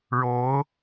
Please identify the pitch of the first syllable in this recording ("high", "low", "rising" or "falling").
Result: rising